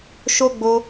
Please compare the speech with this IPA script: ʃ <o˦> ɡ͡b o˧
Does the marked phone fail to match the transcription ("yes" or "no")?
no